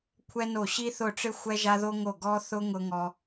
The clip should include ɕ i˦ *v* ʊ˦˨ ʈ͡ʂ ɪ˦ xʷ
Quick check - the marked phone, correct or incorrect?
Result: incorrect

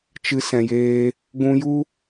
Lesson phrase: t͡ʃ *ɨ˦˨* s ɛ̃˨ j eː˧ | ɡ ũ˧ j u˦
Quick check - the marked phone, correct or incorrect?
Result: incorrect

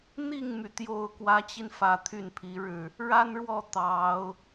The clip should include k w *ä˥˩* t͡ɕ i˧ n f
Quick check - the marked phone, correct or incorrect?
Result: incorrect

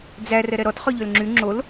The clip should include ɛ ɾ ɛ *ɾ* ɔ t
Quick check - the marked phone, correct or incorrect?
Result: correct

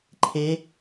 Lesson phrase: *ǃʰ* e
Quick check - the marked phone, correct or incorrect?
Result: correct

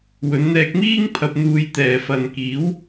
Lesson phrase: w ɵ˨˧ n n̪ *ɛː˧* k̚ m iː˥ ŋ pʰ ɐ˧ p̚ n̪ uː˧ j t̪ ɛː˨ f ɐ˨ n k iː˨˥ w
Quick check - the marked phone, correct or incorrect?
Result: correct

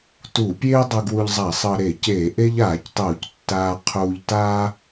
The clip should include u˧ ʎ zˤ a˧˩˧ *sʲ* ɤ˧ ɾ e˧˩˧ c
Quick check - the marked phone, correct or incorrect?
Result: incorrect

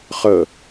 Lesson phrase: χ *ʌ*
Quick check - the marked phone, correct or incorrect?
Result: incorrect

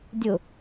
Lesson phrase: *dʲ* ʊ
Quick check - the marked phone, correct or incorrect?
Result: correct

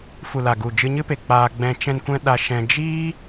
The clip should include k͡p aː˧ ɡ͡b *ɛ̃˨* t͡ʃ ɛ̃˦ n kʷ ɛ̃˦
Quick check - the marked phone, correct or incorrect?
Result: incorrect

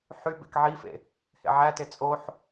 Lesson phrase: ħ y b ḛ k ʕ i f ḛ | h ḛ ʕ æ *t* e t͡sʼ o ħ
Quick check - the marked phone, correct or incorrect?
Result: correct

